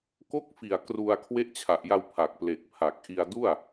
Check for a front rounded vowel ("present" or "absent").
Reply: absent